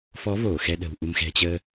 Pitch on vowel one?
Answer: rising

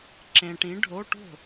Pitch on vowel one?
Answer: low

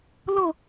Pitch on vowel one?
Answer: falling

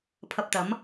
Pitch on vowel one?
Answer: low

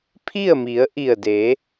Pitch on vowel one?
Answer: falling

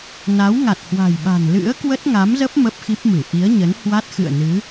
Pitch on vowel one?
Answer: rising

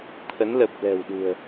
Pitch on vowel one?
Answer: rising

